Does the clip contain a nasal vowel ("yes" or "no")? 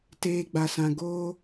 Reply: yes